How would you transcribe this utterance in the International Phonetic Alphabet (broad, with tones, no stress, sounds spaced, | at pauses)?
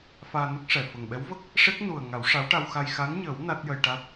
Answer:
f aː˧ n ə˦˥ k̚ ʂ ɛ˨˩ f ə˨˩ ŋ ɓ ɛ˧˥ w v ə˦˥ k̚ | ʂ e˦˥ k̚ n u˨˩ ə̯ ŋ a˨˩˦ w ʂ a˧˥ w ʈ a˧ w x a˧ j x a˧˥ n ɲ əː˨˩˦ w n a˦˥ t̚ j ə˧ j ʈ a˦˥ t̚